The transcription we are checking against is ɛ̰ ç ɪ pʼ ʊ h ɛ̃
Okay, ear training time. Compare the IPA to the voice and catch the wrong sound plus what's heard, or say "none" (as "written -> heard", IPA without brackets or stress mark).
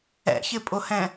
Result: none